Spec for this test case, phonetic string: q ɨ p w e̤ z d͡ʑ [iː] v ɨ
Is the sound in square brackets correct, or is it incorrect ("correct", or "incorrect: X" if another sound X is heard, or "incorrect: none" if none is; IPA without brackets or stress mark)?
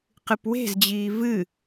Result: correct